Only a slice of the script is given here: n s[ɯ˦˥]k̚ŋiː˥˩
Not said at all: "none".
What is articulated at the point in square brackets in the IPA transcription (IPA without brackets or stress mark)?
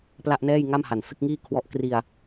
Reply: ɯ˥˩